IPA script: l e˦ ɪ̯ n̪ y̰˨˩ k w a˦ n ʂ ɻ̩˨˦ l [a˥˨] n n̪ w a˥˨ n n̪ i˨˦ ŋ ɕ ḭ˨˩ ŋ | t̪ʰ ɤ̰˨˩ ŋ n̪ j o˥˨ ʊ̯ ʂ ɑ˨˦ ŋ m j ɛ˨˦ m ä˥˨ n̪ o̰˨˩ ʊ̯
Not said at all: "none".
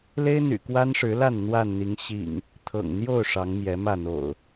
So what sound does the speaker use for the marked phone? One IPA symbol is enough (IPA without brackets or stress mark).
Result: a˥˨